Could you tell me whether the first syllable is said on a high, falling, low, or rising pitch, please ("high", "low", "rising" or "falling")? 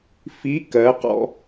rising